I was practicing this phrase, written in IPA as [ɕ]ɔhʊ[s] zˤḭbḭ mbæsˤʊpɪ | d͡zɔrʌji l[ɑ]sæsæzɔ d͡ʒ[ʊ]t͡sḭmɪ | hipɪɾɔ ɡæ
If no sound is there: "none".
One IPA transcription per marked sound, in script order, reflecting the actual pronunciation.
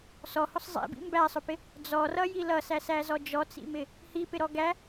s, sˤ, ʌ, ɔ

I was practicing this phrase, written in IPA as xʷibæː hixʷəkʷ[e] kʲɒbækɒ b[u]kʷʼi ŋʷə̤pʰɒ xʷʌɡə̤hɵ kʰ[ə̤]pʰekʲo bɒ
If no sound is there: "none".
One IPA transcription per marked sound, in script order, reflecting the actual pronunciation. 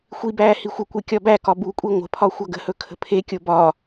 e, u, ə̤

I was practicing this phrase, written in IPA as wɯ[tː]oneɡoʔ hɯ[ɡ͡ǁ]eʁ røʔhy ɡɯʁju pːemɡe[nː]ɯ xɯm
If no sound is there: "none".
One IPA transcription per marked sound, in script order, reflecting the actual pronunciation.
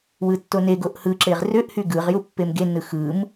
tː, ǁ, nː

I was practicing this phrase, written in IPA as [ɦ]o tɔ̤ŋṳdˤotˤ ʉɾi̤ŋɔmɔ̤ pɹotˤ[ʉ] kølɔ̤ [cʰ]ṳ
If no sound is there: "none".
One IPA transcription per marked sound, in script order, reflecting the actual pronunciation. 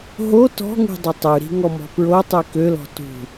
ɦ, ʉ, t

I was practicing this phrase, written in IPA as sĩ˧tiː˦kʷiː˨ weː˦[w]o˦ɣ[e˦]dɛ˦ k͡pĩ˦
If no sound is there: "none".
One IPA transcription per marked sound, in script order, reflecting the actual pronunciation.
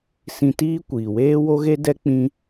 w, e˦

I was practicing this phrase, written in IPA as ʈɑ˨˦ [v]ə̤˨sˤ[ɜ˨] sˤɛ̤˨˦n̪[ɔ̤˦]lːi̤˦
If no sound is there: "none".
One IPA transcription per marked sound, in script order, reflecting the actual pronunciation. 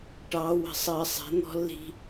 w, ɜ˨, ɔ̤˦

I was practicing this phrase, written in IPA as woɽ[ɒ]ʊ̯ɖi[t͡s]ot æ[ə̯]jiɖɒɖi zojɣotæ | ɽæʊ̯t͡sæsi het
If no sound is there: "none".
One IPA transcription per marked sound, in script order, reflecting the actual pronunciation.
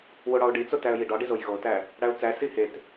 ɒ, t͡s, ə̯

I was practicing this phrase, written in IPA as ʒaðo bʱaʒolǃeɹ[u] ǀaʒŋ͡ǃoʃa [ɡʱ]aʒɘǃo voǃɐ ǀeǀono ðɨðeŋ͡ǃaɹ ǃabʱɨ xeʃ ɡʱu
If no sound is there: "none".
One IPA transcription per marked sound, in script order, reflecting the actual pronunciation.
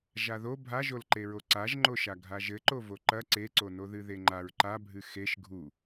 o, ɡʱ

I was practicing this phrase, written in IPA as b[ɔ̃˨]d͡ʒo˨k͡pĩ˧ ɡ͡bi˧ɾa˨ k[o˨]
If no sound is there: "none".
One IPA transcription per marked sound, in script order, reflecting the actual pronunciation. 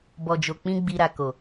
ɔ˨, o˨

